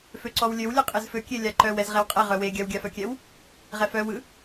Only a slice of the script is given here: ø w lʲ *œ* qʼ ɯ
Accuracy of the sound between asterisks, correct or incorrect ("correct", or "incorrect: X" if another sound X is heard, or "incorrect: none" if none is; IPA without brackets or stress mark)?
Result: correct